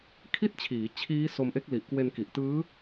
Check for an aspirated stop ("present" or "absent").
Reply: present